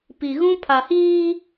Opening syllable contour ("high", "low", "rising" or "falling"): low